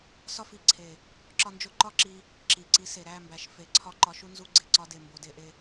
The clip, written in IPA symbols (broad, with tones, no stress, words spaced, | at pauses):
sɒ˦˨fi˨ǀʰe˨ | ǁɒ˧nd͡ʒo˧ǃɒ˦ǁi˧ | ǁi˨ǀi˨˦s e˨ɾæ˦˨mbæ˨ʃ fe˨˦ ǀʰɒ˧ ǃɒ˧ʃu˦ nzu˧ ɡ͡ǀe˨ǀɒ˧de˨ mbo˨de˧ʔe˧